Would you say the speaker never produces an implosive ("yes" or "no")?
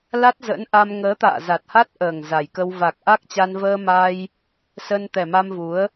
yes